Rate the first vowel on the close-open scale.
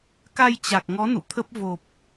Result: open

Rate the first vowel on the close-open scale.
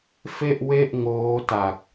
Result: mid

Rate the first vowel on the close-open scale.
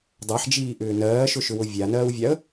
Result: open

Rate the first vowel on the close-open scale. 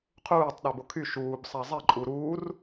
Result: close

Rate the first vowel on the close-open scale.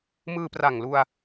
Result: close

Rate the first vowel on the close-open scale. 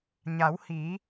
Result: open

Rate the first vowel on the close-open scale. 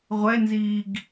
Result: mid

